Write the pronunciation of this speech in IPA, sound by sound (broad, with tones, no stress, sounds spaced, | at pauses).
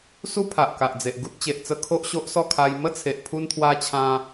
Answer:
s u˦ pʰ a˨ ʔ k a˨ ʔ d͡z e˨ ʔ ɡ u˦ t̚ t͡ɕ e˨ ʔ t͡s ə˧ kʰ o˦ ʔ ɕ o˦ ʔ s ɔ˥˧ kʰ a˧ j m ə˦ t͡sʰ e˨ ʔ pʰ u˧ n t̪ʰ w a˧ t͡ɕʰ ã˧